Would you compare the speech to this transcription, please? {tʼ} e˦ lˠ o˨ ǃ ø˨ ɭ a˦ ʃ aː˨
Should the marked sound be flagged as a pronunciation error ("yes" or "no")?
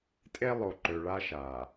no